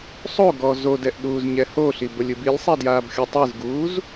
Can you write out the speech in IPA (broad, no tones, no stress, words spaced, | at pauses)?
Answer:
sˤoɡɔ zodɛʔɗuːzɲɛ hoɬibɤlʲɯb ilʲsˤɛdjaːbxʲo tˤɯzɡuːz